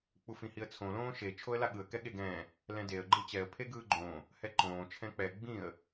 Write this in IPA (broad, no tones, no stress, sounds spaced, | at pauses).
k͡p u f ĩ h i ə̯ t͡sʰ õ l õː ʃ e t͡ʃʰ o ə̯ l a ɠ ɯ ə̯ k ɛ ɠ e ɡ ɛ̃ː | l ɛ̃ d e ə̯ ɡ͡ǃ ɯ t͡ɕ ɛ ə̯ pʰ e ɡ ɯː ɡ͡ǃ õː | h ɛ ǃ õː t͡ʃʰ ɛ̃ k͡p ɛ ɡ͡b ĩ ə̯